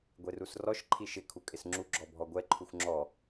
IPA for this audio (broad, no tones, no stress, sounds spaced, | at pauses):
ɡʷ e r u s r ɔ ʃ ǃʰ i ʃ ɪ kʰ u kʼ ɪ s ŋ͡ǁ u ɡ͡ǁ ɔ bʱ ɔ ɡʷ ɛ ǃʰ u xʷ ŋ͡ǁ ɔ